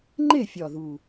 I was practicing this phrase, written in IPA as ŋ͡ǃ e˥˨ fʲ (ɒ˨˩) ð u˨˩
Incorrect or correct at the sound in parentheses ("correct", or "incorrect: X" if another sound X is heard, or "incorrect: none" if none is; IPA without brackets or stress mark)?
correct